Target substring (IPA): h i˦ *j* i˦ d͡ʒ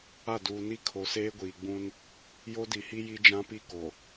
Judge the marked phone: correct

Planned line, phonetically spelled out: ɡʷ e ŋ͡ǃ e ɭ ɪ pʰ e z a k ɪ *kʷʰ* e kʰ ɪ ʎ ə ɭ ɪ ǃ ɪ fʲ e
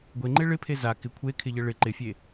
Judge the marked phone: correct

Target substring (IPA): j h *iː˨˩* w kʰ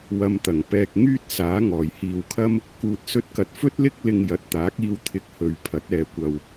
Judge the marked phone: incorrect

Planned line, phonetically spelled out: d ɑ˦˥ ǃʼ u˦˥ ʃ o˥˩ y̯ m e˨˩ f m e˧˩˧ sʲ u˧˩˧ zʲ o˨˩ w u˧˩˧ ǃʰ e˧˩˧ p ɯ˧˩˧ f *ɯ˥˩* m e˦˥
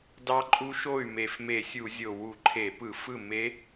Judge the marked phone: correct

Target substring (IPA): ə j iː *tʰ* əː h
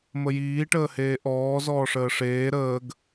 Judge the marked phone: incorrect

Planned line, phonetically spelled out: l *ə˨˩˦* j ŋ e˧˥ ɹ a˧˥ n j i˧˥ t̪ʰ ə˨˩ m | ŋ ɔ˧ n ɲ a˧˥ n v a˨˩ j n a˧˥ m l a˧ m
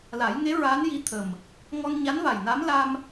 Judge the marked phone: incorrect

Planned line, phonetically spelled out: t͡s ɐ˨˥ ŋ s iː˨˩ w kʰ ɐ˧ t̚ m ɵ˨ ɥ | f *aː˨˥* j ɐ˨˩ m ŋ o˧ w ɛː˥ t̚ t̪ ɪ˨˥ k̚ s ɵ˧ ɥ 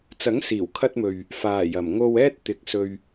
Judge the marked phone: incorrect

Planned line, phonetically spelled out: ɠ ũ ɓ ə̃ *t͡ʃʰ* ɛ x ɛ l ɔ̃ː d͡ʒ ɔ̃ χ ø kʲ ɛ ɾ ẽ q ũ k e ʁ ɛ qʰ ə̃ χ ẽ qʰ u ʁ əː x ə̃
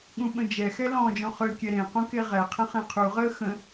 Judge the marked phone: incorrect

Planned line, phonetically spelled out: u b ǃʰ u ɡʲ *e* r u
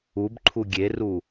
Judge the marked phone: correct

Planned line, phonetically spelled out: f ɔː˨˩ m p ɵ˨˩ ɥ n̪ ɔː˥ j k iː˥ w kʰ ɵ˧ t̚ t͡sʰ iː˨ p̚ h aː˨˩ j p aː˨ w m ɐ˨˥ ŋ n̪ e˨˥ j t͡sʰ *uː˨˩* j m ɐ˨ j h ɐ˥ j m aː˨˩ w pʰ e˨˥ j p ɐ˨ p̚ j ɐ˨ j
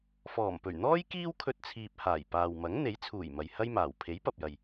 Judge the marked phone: correct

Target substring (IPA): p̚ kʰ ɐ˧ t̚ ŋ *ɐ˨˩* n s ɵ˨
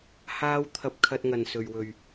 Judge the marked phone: incorrect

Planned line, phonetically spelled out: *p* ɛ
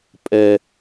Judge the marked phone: incorrect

